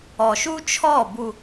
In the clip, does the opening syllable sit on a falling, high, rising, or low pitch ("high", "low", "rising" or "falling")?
low